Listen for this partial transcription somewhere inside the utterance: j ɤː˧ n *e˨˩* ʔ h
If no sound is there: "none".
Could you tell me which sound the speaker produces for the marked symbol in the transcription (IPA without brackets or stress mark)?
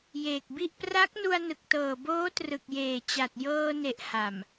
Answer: e˨˩